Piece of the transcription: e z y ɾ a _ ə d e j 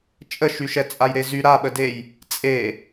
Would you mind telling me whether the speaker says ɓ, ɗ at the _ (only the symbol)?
ɓ